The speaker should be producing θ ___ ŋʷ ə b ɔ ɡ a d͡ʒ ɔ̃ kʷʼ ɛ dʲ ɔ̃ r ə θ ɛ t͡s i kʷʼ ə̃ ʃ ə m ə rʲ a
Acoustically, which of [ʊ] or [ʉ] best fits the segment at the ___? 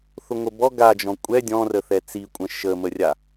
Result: ʊ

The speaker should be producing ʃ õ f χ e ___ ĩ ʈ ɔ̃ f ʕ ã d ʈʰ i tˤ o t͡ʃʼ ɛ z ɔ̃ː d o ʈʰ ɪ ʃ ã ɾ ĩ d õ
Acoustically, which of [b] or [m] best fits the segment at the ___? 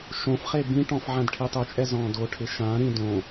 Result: b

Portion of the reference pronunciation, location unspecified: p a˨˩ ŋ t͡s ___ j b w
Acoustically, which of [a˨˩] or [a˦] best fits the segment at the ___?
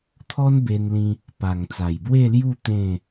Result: a˨˩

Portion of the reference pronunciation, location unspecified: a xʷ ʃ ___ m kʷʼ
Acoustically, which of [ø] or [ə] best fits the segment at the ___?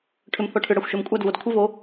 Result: ø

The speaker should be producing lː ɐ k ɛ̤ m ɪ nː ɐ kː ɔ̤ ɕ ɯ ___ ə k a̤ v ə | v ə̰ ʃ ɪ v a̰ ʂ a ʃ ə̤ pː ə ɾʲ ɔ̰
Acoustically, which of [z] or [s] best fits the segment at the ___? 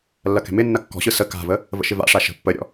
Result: s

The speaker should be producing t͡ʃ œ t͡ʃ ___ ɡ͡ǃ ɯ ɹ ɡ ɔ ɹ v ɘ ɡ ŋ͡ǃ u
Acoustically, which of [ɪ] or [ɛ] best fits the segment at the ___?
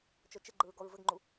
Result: ɪ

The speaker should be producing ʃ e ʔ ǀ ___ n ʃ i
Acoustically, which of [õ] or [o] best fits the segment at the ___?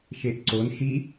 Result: o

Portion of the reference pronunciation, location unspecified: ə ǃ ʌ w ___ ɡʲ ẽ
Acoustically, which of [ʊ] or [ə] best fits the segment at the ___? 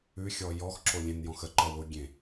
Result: ʊ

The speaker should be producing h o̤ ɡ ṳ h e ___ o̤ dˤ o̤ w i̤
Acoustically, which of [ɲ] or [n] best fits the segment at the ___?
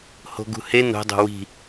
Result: n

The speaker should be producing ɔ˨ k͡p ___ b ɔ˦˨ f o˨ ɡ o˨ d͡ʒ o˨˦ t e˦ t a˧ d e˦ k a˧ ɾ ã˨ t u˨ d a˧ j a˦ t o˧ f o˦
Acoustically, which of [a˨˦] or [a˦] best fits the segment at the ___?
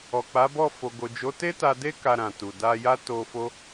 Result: a˨˦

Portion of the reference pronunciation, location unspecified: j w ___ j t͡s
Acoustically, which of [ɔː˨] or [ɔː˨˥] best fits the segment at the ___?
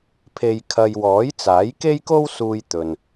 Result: ɔː˨˥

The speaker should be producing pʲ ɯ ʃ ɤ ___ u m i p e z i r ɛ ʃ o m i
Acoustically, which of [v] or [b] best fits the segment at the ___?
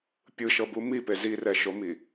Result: b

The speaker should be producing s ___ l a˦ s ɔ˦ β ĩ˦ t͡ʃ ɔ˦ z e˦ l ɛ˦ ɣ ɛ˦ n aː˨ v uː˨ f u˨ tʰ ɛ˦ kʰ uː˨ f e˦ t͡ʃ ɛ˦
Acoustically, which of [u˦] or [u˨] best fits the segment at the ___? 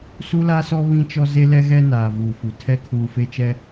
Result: u˦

